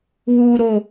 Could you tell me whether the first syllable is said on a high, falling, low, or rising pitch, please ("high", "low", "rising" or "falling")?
high